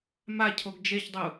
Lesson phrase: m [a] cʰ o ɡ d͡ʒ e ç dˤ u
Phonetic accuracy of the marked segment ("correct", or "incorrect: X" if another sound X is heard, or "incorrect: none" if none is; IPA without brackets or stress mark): correct